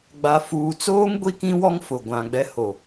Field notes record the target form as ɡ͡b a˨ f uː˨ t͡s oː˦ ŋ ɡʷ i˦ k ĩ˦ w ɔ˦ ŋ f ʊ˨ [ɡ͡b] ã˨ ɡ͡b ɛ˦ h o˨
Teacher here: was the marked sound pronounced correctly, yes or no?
no